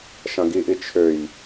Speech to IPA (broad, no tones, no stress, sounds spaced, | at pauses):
ʃ ɐ̃ ɡ i ʔ i t͡ʃʰ ø j